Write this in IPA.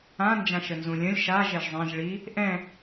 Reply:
ã n d͡ʒ ã ʃ ə n z ũ lʲ ə̃ lʲ ʃ a ʒ ɛ ʒ zˤ ẽ ʒ ɭ i | ʔ ɛ̃

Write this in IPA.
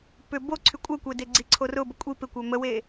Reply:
p ʏ b o ǀʰ y kʷʼ ɛ kʷ ɛ d e ɡ͡ǀ i ǀʰ o r ʊ b ə kʷʼ i p ɪ kʷ œ m ə w e

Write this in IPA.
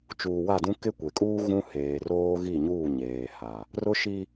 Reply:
t͡ʃ uː˨ w a˦˨ d ũ˦ k ɪ˦ kʷ e˨ kʼ uː˦ ɣ ũ˦ h eː˨ r oː˦ ɣ i˦˨ ɲ uː˦˨ ɲ eː˨ h a˨ | r ʊ˦ ʃ i˦

